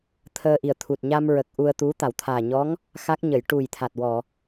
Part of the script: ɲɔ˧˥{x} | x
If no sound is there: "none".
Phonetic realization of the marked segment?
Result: ŋ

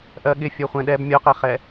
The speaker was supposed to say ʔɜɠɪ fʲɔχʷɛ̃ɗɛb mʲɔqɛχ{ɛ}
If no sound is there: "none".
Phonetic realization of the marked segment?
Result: ɛ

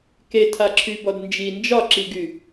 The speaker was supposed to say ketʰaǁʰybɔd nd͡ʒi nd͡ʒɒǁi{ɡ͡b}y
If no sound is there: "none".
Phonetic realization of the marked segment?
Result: ɡ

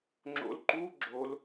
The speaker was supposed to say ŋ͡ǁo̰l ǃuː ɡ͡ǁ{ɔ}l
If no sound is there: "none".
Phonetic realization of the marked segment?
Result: o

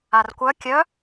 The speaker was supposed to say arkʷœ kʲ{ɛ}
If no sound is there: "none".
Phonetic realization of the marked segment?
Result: œ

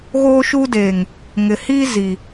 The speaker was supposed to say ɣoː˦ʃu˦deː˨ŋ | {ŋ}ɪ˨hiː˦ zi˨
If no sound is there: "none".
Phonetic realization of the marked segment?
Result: ŋ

